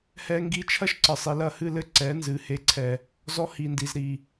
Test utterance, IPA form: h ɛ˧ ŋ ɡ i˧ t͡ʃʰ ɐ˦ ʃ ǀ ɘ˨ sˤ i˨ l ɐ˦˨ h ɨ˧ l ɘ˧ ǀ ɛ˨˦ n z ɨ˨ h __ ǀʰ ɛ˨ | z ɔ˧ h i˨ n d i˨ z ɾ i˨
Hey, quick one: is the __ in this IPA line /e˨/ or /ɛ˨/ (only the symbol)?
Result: e˨